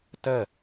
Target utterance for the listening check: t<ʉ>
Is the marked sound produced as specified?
no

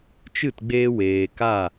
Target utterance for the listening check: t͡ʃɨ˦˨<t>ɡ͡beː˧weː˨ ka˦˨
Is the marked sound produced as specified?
yes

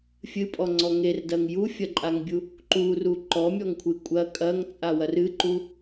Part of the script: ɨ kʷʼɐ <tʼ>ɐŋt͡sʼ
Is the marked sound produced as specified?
no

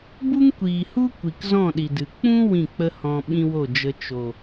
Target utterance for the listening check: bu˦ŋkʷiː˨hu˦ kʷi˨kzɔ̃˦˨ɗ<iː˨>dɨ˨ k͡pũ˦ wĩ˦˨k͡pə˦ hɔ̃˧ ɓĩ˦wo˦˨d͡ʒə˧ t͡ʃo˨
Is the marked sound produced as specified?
no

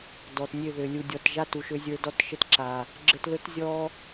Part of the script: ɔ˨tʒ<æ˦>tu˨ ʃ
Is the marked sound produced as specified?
no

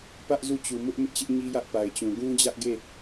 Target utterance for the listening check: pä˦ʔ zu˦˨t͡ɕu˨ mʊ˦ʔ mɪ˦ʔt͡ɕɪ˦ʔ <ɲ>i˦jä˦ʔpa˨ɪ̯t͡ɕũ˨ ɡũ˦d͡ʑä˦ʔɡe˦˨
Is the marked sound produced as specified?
yes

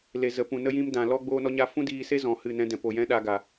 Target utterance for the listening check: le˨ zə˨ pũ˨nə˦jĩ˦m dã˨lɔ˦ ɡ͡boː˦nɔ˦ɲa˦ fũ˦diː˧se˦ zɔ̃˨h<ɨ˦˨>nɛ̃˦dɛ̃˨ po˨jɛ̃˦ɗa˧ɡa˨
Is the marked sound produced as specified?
yes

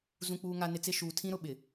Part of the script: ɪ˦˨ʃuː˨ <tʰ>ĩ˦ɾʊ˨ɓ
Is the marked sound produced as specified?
yes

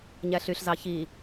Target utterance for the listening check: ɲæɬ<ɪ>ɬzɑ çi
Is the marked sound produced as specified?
no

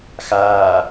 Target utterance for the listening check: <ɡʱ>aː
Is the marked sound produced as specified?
no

